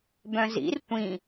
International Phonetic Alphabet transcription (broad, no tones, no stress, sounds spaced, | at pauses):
b œ̃ z ḭ r tʷ ĩ